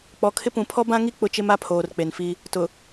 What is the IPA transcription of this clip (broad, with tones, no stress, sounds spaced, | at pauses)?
k͡p ɔ˨ kʰ ɪ˦ p ũ˨˦ pʰ ɔ˦ b ã˦ ŋ i˦ k͡p ʊ˦ t͡ʃ ɪ˦ m a˦ pʰ oː˨ r k͡p e˨ n f i˦ | t ʊ˨